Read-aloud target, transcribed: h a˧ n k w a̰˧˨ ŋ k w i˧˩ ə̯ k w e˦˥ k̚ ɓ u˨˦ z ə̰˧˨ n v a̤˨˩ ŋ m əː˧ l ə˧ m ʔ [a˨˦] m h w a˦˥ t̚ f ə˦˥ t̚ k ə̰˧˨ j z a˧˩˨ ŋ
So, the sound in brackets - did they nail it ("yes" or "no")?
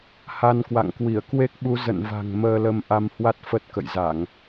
no